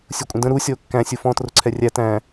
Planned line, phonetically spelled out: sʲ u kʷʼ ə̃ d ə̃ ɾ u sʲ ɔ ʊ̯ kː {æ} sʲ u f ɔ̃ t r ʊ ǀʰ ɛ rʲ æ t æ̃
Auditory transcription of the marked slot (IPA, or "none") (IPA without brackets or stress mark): æ̃